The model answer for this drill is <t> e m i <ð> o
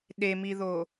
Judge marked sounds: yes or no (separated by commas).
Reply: no, yes